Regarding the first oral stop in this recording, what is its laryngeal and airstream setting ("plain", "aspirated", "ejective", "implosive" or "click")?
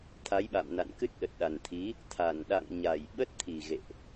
aspirated